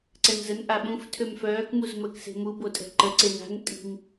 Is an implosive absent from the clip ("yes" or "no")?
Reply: no